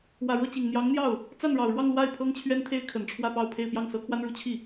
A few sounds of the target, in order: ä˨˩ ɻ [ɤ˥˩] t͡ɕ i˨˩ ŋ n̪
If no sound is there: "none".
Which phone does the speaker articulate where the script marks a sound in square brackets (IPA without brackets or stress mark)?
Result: ɤ˥˩